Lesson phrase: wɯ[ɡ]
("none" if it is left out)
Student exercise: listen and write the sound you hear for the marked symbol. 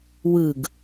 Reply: ɡ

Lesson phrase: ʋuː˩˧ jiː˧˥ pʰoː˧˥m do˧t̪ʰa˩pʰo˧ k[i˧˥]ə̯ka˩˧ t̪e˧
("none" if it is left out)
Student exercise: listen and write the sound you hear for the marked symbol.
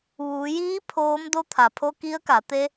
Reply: i˧˥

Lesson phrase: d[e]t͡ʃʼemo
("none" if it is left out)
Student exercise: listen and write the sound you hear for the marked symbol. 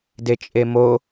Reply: e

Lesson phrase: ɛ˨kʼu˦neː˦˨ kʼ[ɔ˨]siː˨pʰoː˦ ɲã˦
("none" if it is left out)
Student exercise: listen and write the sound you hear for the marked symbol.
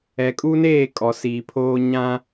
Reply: ɔ˨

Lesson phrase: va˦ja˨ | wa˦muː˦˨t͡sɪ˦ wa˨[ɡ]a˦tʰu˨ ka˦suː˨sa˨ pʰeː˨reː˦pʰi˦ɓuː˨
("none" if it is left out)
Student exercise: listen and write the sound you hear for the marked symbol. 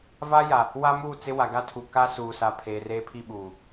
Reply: ɡ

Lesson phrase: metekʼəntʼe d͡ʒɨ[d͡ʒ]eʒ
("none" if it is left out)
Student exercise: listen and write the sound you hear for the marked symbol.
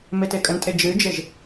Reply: d͡ʒ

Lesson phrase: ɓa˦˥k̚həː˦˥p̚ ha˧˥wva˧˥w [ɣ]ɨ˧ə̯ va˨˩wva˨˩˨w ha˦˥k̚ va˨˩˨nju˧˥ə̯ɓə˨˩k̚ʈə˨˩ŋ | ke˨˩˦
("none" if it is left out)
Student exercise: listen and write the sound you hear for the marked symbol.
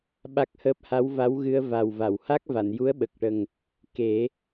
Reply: ɣ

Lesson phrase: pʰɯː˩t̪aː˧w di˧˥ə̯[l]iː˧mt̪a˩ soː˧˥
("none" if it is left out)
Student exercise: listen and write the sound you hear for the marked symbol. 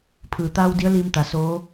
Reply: l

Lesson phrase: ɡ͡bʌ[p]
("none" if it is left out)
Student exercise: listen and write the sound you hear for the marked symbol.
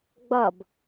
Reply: b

